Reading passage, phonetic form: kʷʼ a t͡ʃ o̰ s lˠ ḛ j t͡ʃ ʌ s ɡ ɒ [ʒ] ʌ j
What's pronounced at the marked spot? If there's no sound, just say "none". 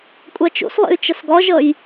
ʒ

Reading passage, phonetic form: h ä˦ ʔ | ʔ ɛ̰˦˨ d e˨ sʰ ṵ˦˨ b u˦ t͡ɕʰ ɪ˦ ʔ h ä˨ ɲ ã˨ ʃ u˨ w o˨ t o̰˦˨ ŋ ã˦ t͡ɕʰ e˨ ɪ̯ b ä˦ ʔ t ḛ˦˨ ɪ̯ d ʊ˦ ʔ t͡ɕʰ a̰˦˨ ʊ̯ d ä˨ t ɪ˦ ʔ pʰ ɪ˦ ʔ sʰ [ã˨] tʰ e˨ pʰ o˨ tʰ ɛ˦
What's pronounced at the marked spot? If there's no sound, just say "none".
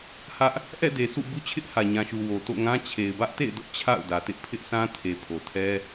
ã˦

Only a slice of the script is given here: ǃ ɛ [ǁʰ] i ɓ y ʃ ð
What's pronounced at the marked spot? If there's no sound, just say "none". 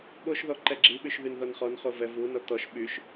ɡ͡ǁ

